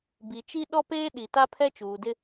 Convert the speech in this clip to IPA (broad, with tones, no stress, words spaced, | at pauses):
bi˨t͡ʃi˦ ɗɔ˦peː˦ɗi˨ ta˦ pʰɛ˦t͡ʃuː˨dɪ˦